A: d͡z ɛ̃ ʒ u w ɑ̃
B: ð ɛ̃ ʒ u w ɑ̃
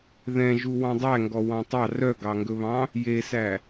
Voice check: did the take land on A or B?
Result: B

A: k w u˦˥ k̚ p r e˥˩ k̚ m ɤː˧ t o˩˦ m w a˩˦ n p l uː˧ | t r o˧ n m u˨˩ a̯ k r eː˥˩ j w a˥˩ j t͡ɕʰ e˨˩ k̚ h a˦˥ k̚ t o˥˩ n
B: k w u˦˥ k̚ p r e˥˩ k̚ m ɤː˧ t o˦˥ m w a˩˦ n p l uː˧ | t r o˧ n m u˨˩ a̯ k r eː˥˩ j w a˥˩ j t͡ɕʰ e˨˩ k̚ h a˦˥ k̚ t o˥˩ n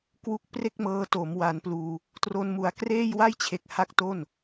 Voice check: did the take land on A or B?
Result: A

